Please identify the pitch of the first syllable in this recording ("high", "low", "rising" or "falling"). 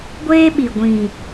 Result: high